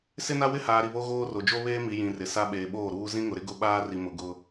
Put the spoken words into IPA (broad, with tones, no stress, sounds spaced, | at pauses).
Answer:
s ɪ˦ n a˦ w ɪ˦ h aː˨ ɾ i˨ β o˦ ɣ oː˦ r o˨ d͡ʒ o˦ β eː˦ m i˨ j ĩ˨ r ɪ˨ s a˦ ɓ eː˨ ɓ oː˦˨ ɾ uː˦ z ĩ˦ ŋ ʊ˨ ɾ ɪ˦ ɡ ʊ˦ ɓ aː˦ r i˨ m ʊ˨ ɡ ʊ˦